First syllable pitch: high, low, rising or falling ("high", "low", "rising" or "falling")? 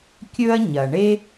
high